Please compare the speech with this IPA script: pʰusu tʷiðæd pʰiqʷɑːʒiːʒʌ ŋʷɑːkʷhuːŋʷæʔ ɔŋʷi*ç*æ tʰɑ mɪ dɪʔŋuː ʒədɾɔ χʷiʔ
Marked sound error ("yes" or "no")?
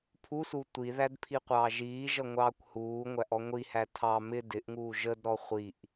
yes